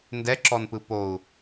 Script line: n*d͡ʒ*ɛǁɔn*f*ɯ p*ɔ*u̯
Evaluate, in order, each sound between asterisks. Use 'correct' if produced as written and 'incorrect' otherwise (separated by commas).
incorrect, incorrect, incorrect